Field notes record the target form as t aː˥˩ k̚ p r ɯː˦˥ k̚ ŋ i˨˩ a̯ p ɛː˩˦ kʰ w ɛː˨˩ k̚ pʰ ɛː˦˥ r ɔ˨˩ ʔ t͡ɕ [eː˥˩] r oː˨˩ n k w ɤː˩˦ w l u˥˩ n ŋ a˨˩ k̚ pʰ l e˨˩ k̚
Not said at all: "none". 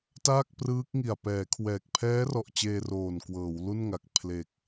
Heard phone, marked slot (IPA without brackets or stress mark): eː˧